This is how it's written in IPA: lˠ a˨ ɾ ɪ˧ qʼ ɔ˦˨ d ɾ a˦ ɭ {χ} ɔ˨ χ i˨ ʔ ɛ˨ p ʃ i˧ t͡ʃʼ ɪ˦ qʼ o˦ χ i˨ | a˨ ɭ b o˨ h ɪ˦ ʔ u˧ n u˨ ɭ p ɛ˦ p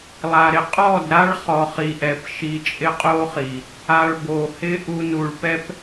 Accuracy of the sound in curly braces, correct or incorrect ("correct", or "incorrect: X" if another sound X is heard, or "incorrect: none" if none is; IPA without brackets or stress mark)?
correct